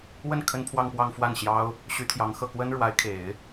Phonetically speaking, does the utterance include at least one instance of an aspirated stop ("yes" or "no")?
yes